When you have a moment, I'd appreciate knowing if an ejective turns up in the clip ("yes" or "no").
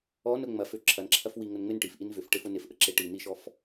no